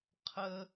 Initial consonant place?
uvular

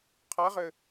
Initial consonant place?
uvular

